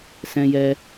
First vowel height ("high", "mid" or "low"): mid